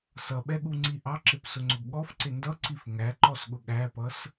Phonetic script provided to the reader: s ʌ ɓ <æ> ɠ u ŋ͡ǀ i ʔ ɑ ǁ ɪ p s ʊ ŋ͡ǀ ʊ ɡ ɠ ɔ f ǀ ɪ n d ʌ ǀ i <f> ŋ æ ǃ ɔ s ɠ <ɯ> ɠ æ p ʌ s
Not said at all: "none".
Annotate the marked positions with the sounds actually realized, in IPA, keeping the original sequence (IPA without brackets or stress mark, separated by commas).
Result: ɛ, f, ʊ